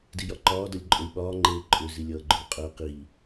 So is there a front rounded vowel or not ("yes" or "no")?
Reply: yes